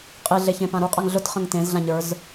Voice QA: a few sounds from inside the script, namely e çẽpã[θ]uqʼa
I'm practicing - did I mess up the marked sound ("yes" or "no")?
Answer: yes